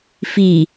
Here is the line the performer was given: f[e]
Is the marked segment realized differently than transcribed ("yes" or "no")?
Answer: yes